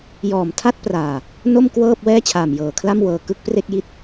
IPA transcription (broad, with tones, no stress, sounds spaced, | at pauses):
j ɔː˨˩ m tʰ a˥˩ t̚ p r aː˨˩ | n o˥˩ m k w ɤː˥˩ p̚ w ɛː˥˩ t͡ɕʰ aː˨˩ m j ɤː˨˩ kʰ l a˥˩ m w ɤː˧ k ɯ˦˥ k̚ p r e˥˩ k̚ j i˥˩ t̚